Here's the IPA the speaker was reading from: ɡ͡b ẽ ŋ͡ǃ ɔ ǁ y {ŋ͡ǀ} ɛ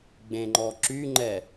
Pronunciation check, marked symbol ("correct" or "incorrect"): incorrect